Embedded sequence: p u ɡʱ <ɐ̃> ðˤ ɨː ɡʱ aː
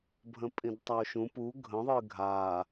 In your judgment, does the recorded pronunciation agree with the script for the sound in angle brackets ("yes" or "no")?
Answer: no